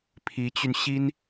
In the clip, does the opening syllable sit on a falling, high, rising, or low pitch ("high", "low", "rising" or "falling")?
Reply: rising